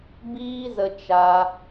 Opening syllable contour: high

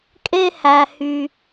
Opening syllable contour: high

